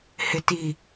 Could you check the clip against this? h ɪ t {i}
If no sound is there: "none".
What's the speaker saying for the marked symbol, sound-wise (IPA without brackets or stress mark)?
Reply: i